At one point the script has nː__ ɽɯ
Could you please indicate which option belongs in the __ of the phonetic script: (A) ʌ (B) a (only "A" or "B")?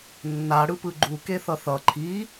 B